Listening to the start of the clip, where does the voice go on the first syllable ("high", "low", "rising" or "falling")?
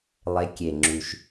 rising